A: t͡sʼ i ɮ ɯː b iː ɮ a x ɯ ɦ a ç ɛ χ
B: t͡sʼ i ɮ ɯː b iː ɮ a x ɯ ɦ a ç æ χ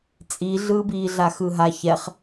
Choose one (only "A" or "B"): A